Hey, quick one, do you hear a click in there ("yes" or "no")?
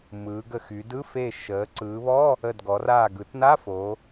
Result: yes